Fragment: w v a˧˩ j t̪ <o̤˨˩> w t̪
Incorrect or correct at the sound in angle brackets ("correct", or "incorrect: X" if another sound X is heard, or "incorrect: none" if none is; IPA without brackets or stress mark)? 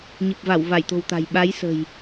correct